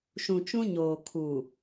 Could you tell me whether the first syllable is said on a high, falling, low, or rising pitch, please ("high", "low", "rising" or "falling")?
low